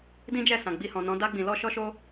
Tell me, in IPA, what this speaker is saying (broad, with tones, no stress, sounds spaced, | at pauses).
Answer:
d ĩ˦ d͡ʒ ɛ˦˨ s ã˨ ɡ͡b i˧ h ɔ̃˨ n ɔ̃˨˦ d a˧ ɡ͡b ĩ˨ l ɔ˧ ʃ ɔ˦ ʃ o˦